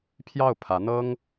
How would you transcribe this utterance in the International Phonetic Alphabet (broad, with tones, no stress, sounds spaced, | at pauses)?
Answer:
pʰ j ɑ˥˩ ʊ̯ pʰ ä˧˥ n̪ ɤ˥ ŋ